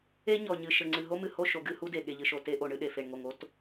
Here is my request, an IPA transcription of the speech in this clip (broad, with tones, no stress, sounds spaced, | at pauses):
e˦ ɲ ɔ˨ ɲ ɨ˨ ʃ ɘ˨ ŋ͡ǀ ɨ˨ ɦ o˦ m ɨ˨ h o˦˨ ʃ o˨ ɡ ɨ˦˨ h u˦ d e˨ ɠ e˨ ʎ ɨ˨ ʃ o˨ t e˦ ʔ o˨ ɳ ɨ˨˦ ɗ e˨ f e˨ ɳ ŋ o˨ ŋ o˦ t